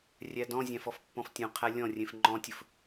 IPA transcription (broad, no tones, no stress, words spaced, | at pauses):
rʲædɔ̃zʲæ̃f ɔfpːɔ̃ftʲũqʰæ lʲɔ̃rʲẽf ŋ͡ǃɔ̃tʲɵf